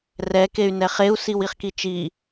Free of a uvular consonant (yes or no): no